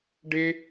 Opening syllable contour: high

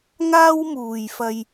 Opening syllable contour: high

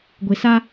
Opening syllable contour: low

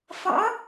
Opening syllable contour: rising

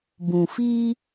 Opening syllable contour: low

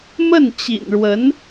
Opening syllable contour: falling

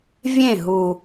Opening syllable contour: falling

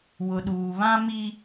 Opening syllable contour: low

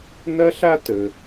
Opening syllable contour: high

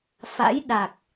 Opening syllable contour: rising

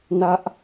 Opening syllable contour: high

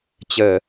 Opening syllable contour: low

